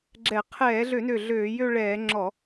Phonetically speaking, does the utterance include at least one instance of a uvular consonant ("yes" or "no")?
yes